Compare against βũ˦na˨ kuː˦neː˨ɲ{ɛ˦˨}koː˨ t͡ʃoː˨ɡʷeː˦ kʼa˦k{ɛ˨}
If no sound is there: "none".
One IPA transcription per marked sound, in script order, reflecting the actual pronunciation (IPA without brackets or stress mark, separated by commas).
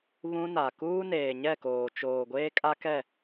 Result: ɛ˦˨, ɛ˦˨